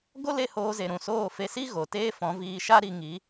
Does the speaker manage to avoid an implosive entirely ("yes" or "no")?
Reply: yes